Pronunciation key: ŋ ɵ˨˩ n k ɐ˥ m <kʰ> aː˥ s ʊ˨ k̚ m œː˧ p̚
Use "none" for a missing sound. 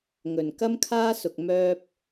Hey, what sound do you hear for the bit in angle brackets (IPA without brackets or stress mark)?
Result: kʰ